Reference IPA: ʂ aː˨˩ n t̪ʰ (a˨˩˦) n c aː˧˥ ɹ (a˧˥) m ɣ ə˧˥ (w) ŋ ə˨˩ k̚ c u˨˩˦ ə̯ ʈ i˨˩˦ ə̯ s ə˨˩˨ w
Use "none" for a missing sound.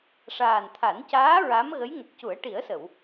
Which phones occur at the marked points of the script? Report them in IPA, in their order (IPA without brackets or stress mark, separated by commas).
a˨˩˦, a˧˥, j